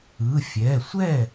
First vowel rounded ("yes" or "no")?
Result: no